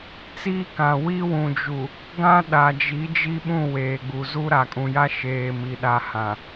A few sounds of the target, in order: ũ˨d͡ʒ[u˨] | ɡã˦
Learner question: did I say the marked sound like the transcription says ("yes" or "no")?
yes